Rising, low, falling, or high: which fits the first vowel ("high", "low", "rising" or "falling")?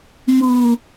low